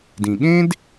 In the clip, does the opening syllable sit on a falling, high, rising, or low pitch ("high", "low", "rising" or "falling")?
low